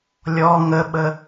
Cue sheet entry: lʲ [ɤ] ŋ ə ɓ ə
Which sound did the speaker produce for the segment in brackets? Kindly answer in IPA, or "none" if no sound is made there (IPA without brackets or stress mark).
ɔ